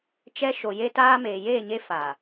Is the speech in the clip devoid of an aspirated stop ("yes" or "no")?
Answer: yes